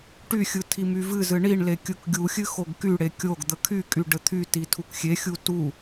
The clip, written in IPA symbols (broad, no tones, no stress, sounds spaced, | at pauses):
ʈ y xʲ ɯ tʰ i m y v ɨ z ɨ ɳ i ɳ l e kʲ ɯ k ɡʲ u xʲ ɨ x o ɡ k y ɽ e kʲ o ɡ d̪ ə kʰ y kʼ y ɖ ɘ t̪ʰ y t i tʰ u k xʲ e xʲ u t u